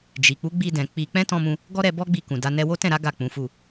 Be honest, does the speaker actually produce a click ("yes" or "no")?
no